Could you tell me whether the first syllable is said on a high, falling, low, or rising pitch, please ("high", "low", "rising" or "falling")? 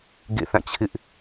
falling